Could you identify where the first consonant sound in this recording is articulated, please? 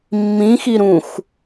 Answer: labial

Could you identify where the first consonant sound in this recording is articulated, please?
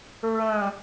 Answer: alveolar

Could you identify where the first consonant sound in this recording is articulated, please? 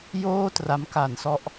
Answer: palatal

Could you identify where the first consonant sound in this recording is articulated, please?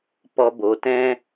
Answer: labial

